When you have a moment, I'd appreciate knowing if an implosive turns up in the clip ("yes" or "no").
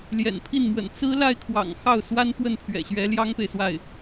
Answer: no